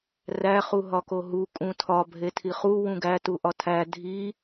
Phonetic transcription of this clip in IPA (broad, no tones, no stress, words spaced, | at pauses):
ræ χuɦɒkoɦu kʼũtʰɒ bʱetʰiχu wũɡæ tuʔɒtʰæ dʱi